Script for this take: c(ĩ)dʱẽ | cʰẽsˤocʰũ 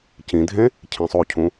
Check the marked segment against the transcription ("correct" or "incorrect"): correct